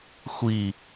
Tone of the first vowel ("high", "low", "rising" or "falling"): low